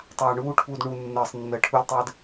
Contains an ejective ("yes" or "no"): no